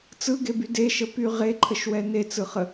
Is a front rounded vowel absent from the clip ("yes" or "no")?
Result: no